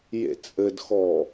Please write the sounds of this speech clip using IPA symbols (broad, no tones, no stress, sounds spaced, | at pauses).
j ḛ t͡sʼ ɘ d x ɔ